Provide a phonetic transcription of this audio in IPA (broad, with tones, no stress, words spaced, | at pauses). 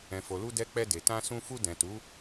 ɛ̃˨fo˨lu˧ dɛ˦ k͡pɛ˧de˨ tã˧sũ˧fu˧ dɛ̃˨tu˨˦